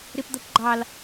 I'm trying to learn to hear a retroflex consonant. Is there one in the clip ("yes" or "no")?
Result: no